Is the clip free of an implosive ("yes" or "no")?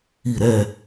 yes